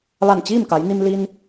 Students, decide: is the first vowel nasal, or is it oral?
oral